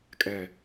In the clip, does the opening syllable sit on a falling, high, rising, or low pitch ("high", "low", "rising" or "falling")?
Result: low